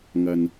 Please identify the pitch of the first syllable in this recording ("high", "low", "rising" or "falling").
low